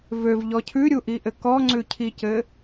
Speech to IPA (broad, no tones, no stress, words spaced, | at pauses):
vøvʎɔ cʰʉɾʲuʔiʔɘ kɔŋ͡ǀʉcʰicɘ